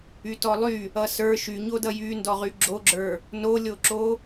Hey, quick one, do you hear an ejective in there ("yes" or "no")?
no